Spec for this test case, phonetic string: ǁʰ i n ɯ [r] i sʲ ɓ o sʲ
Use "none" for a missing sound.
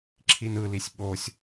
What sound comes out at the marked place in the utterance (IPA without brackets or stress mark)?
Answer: l